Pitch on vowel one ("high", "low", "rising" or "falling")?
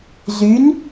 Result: rising